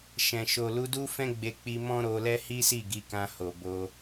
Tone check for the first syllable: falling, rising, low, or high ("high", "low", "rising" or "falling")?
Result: low